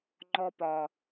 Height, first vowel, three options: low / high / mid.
mid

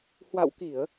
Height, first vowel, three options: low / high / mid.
low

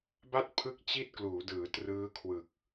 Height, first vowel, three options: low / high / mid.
low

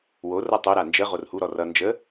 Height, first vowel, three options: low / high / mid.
mid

